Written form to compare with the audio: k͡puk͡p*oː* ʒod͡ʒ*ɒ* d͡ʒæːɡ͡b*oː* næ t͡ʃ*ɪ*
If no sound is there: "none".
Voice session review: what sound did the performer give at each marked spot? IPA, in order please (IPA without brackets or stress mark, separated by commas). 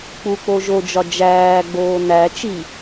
o, ɒ, oː, i